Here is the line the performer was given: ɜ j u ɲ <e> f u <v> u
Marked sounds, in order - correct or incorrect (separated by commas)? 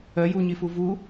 incorrect, correct